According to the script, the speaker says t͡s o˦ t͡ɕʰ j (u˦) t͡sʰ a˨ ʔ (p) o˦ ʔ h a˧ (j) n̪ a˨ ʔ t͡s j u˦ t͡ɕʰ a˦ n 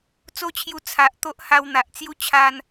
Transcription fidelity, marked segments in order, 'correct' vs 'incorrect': incorrect: u˧, incorrect: t̪, incorrect: w

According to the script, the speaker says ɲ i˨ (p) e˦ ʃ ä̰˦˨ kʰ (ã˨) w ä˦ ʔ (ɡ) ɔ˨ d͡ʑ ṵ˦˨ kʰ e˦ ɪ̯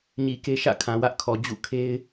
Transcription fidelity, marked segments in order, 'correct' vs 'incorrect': incorrect: k, correct, incorrect: kʰ

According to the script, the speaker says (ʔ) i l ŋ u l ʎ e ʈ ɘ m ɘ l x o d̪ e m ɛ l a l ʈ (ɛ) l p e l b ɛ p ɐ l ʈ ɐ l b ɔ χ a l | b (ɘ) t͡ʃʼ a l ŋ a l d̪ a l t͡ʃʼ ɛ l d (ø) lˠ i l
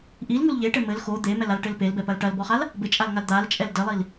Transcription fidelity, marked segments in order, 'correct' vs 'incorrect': correct, incorrect: ɘ, correct, incorrect: ɘ

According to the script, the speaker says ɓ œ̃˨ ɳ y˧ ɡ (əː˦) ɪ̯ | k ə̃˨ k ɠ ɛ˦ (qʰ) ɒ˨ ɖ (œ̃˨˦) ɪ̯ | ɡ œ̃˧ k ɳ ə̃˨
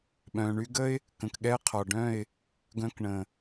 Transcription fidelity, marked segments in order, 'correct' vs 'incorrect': incorrect: ə˦, correct, incorrect: œ̃˦˨

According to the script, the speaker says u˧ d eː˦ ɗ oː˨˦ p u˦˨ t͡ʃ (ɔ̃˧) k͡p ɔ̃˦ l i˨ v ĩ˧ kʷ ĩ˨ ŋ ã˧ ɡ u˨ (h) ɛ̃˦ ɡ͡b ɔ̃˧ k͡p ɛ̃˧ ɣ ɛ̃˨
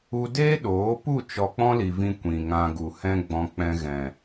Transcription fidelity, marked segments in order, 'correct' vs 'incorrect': incorrect: ɔ˧, correct

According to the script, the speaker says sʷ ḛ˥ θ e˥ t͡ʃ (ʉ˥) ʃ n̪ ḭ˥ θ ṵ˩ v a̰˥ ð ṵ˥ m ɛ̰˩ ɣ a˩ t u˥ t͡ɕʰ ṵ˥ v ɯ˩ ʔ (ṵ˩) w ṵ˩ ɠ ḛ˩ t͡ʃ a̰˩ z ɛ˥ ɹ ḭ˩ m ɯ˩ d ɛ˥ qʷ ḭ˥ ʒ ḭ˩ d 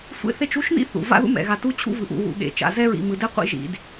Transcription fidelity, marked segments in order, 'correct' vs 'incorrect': incorrect: u˥, correct

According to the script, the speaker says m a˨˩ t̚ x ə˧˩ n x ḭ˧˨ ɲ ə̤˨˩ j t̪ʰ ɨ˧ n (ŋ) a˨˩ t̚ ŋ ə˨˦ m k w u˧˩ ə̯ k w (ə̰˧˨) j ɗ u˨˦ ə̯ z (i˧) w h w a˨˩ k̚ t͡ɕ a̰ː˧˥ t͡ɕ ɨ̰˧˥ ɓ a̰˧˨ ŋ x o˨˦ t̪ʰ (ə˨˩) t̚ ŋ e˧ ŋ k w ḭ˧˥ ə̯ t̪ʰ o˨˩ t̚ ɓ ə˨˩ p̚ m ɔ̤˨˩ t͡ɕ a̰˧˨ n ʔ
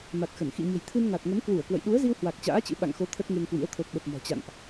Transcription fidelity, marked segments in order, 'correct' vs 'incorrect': correct, correct, correct, incorrect: ə˦˥

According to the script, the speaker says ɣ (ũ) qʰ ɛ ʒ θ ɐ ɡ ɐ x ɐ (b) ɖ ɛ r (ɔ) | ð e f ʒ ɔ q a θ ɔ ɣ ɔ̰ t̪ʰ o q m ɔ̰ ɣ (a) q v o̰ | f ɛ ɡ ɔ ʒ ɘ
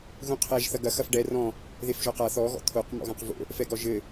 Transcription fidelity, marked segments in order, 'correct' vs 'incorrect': correct, incorrect: f, incorrect: ɔ̃, incorrect: ã

